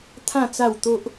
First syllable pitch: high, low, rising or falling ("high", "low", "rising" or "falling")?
falling